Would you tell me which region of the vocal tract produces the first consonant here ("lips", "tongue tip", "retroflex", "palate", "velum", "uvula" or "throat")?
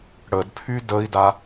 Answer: retroflex